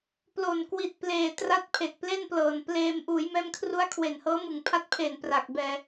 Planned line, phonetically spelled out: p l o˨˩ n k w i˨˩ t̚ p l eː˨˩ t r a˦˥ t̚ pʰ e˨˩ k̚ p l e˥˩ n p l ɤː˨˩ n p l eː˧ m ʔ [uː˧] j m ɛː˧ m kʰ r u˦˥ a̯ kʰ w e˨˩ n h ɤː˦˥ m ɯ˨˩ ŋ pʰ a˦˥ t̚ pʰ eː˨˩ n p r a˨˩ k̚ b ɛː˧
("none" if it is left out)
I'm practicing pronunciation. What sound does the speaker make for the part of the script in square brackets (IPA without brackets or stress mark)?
uː˩˦